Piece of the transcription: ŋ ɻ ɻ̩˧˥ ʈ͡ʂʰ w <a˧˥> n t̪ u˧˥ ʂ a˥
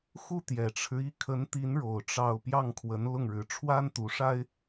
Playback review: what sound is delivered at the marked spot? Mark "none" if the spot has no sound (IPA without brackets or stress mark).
a˥